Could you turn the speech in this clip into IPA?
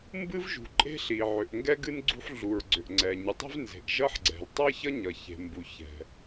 m b ɨ˥ v ʒ ṳ˩ ǃʼ e̤˥ ɬ i˩ ʕ ʏ˩ ʔ ŋ ɡ ɛ˥ ɡ ɨ˥ n ɡ͡ǀ ṳ˥ ħ ɮ u˩ ɹ ɡ͡ǀ ʏ˩ ʔ ŋ͡ǀ ɛ˩ ɲ ɨ˩ tˤ ɛ̤˥ v n z e̤˩ ʔ ʒ ʌ˥ ħ ɡ͡ǀ ɛ̤˩ l tˤ ʌ˥ ç ʌ˥ ɲ ʌ˩ ç e̤˩ m b u˩ ç ɛ̤˩

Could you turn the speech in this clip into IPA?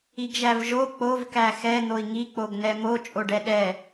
i ɡ ʒ æ v ʒ o k͡p o v k æ x ɛ n̪ o i̯ ŋ i k͡p o ɡ n ɛ m o t͡ʃʼ o ɖ ɛ ɗ ɛ

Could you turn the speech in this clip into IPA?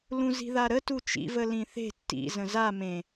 l ũ z i̤ ð a ɾ ə t u t͡ʃ ḭ v ə l ĩ θ e̤ tː ḭ z ə̃ z a m ẽ

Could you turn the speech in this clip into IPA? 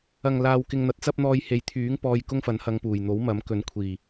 ɐ˨ ŋ l aː˧ w k ɪ˧ ŋ n̪ ɐ˨˥ t̚ t͡s ɐ˥ p̚ n̪ ɔː˧ j h e˨ j t̪ʰ yː˨˥ ŋ p ɔː˧ j k ʊ˥ ŋ f ɐ˨˧ n h ɐ˧ ŋ p uː˨˩ j n̪ o˨˥ w m ɐ˨˥ m k ɵ˨˥ n kʷʰ iː˨˩

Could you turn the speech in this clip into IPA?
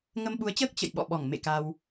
ŋ ə˧ m ɓ u˨˦ ə̯ t͡ɕ əː˦˥ k̚ t͡ɕ ə̰˧˨ j ɓ ɔ̰˧˨ ɓ ɔ˧˩ ŋ m ḛ˧˨ k a˧ w

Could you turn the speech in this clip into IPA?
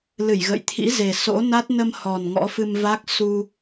l ɨ˧˩ j ɣ ə̰˧˨ j t̪ʰ ḭ˧˥ z e˨˩ s o̰˧˥ n a˦˥ t̚ n ə˧ m h ɔ˨˩ n ŋ ɔ̰˧˥ f ɨ˧ m v a˦˥ k̚ s u˧

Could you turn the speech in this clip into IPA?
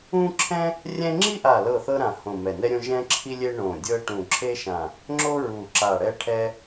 ũ˥ ǁʰ ɛ̃˥ | rʲ ɛ̃˥ ŋ͡ǁ i˥ ʔ a˧˩ l ɤ˧˩ θ ɤ˥ ɾ ã˧˩ h õ˧˩ m ɛ˧˩ n ɛ˥ ɾʲ õ˥ ʒ ɛ̃˥ ǁʰ i˥ lʲ e˥ ɳ õ˧˩ dʲ ɤ˥ ʈ ũ˧˩ ǁʰ e˥ ʃ ã˧˩ | ŋ͡ǁ o˥ ɹ u˧˩ ǁ a˧˩ ɽ ɛ˥ ʈʰ ɛ˥

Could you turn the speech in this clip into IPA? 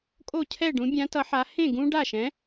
kʼ o˥˩ cʰ ɛ˥˩ ɖ ũ˨˥ bʲ ã˨˥ t ʌ˨˥ ħ a˨˥ h ẽ˥˩ ɡ ũ˦ ɖ a˥˩ ʃ ɛ̃˨˥

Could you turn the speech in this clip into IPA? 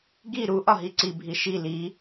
ɡ i ɾ u ʔ ɒ ɦ i ǀ i bʱ i ʃ i l i

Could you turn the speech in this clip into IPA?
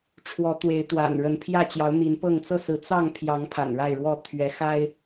ʈ͡ʂʰ w ɔ˨˦ t̪ w e˨˦ ɪ̯ t̪ w a̰˨˩ n ɻ ə˨˦ n pʰ j ä˥˨ t͡ɕ j ɑ˨˦ ʊ̯ n̪ i˨˦ n p ɤ˥˨ ŋ t͡s ɤ˥˨ s ɹ̩˨˦ t͡s ɑ˥˨ ŋ pʰ j ɑ˨˦ ŋ pʰ a̰˨˩ n ɻ a˥˨ ɪ̯ ɻ w ɔ˥˨ t̪ʰ ɥ ɛ˨˦ x a˦ ɪ̯

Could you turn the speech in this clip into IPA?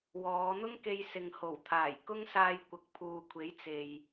w ɔː˨˧ n̪ ʊ˥ ŋ k e˧ j s ɪ˨ ŋ h o˨˩ w t̪ʰ aː˨˩ j k ʊ˥ ŋ s aː˧ j kʷ ɐ˨˥ k̚ pʰ uː˨ kʷʰ e˨˥ j t͡s e˨ j

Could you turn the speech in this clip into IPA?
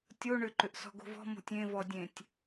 tʲ o ɳ ʏ ǃ ʏ ʔ s ɔ̤ ɡ o̤ v ɔ̤ m o̤ tʲ ẽ v ɔ dʲ ẽ tʲ

